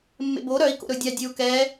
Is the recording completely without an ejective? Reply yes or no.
yes